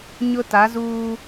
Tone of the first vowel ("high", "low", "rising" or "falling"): high